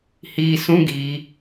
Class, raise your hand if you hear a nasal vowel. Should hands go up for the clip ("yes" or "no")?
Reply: yes